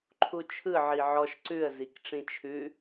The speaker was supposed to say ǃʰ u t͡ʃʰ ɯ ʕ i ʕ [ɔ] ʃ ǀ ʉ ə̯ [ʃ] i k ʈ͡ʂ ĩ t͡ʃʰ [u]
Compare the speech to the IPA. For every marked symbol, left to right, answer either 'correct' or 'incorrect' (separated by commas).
correct, incorrect, incorrect